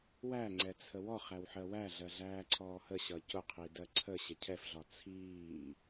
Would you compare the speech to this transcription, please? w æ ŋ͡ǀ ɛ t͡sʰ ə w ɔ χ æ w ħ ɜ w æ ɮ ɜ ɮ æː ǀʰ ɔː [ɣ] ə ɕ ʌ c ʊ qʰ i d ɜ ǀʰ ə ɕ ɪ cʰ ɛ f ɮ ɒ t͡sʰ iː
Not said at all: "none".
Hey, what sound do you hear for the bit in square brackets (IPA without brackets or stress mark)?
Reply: h